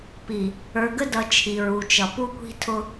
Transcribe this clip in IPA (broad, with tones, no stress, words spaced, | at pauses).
pi˨ | ə˞˨ɡə˦dʌ˨ t͡ʃʰi˨ɹu˨t͡ʃʌ˨ pu˦kʷi̤˦tʰʊ˦